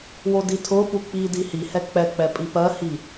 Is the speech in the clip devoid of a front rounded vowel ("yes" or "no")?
yes